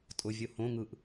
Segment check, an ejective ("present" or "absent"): present